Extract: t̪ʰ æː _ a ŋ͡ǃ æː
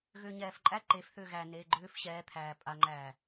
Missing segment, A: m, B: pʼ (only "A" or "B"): B